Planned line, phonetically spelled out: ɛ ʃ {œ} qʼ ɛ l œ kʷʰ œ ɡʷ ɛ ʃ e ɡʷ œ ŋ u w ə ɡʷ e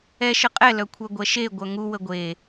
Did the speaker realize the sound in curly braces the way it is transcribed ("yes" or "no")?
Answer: no